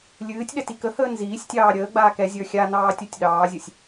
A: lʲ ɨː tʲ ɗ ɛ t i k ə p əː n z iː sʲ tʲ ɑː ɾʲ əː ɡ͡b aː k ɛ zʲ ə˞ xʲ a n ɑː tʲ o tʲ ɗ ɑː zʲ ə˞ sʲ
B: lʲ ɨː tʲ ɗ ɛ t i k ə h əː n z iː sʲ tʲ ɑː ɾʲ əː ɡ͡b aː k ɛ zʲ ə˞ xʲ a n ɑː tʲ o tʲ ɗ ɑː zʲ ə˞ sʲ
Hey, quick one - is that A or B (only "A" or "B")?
B